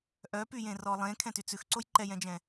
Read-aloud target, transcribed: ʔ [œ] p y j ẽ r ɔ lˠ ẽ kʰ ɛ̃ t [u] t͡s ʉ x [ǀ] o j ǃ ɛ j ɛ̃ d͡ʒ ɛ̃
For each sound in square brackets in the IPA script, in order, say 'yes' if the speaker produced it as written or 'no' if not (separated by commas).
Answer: yes, no, yes